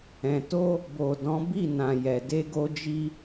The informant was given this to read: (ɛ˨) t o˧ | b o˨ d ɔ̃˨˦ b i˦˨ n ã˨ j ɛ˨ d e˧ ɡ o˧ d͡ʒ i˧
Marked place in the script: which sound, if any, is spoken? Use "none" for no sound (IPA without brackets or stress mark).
ɛ̃˨